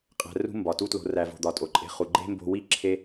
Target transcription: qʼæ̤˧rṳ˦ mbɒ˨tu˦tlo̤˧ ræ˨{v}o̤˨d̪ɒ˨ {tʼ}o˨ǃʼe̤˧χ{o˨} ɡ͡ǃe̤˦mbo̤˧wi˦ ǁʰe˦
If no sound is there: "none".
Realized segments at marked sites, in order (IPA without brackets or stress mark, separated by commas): v, tʼ, u˨